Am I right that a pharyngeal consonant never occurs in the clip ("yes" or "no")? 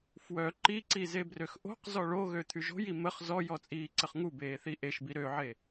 no